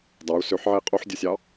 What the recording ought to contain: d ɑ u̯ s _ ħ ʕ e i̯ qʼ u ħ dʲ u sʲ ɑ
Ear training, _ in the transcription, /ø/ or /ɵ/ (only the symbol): ø